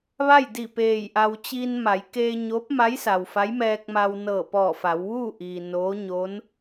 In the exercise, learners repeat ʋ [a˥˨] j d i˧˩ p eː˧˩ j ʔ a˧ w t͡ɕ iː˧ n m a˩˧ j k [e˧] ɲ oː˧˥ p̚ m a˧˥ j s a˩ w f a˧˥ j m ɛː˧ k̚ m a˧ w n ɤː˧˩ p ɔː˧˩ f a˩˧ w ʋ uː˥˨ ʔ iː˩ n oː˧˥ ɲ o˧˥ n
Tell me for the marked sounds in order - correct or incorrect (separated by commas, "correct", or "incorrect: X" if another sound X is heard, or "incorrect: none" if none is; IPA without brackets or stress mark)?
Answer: correct, incorrect: eː˧